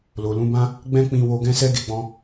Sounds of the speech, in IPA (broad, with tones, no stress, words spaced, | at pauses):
lo˨lũ˨˦bã˦ | ɡ͡bɛ̃˦k͡pĩ˧ wo˧ɡɛ̃˦sɛ˦ ɡe˧ɡ͡bɔ̃˧